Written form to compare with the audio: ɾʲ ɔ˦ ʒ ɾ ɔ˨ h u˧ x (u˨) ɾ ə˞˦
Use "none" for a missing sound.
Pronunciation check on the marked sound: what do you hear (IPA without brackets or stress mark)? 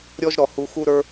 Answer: u˦